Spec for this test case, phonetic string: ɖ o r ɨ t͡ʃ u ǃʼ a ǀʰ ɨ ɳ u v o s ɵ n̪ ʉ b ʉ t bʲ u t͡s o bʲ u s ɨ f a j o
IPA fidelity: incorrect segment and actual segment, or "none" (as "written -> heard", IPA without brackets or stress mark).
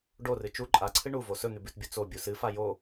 none